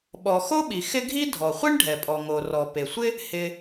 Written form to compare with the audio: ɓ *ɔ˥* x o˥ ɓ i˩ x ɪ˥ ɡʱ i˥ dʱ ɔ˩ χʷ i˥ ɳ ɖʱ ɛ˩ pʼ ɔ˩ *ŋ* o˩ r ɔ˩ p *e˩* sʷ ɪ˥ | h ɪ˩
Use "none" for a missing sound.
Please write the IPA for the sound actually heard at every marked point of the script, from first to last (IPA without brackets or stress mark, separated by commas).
ɔ˩, ŋ, e˩